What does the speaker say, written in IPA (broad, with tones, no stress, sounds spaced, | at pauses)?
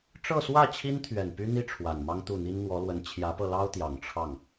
ʈ͡ʂ ɤ˥˧ s w ä˥˩ t͡ɕʰ i˥ n t̪ʰ ɥ ɛ˨˩ n p y˥ n̪ i˥ ʈ͡ʂʰ w a˨˩ n m ɑ˥ ŋ t̪ u˥˩ n̪ i˥ n n̪ w ɔ˧˥ l w ə˧˥ n t͡ɕʰ j ä˧˥ p ɤ˧ l ɑ˥ ʊ̯ t̪ j ɑ˨˩ ŋ ʈ͡ʂʰ ɑ˥˩ ŋ